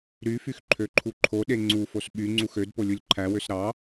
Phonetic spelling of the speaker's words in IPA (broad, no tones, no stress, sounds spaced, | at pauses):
ɾ y f y x ǃʰ ø ǃʰ u ǃʰ o ɗ e ŋ͡ǀ u f o s ɓ y ŋ͡ǀ u x ø d p o lʲ u lʲ ǃʰ æ w ø s ɾ ɑ